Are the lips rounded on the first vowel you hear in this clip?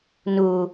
yes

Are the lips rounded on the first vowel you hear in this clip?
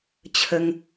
no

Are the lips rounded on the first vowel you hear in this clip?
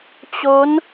yes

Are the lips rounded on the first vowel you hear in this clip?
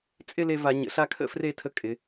no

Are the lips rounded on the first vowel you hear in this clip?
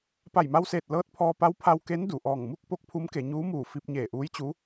no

